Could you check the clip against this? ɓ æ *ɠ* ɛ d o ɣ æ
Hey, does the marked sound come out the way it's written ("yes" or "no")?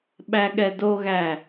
yes